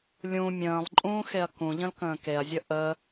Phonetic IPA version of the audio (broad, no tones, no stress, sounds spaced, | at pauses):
lʲ ũ mʲ ə̃ː lˠ ǃʼ ũː x e ɐ̯ k ũ ʎ ə̃ l k ə̃ː k e ɐ̯ zʲ ə ʔ ə